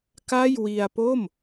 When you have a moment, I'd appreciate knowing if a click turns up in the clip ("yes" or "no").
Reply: no